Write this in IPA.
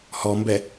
h ɔ m b ɛ

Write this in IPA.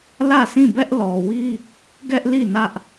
l ä˦˨ sʰ ĩ˦˨ b ɛ˦ ʔ l ɔ˨ w i˦ | ɡ ɛ˦ ʔ l i˦˨ n ä˦ ʔ

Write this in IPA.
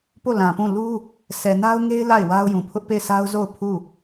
p o˦˨ l ã˨ p ũ˦˨ l u˦ | s ɛ˨ n a˦ ʊ̯ ŋ e˦ ɪ̯ l a˦˨ ɪ̯ w a˦ ʊ̯ j ũ˨ pʰ ʊ˦ ʔ p e˦˨ ɪ̯ sʰ a˦ ʊ̯ z o˦˨ ʊ̯ pʰ u˦˨

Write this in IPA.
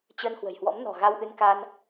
t͡ɕ ə˧ n h w ə̤˨˩ j h w ɔ̰˧˥ m n ɔ̤˨˩ ɣ a˧ w ʔ ɨ˧ n k a˧ n

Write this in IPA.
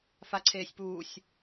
f a ǀʰ eː sʲ p uː sʲ

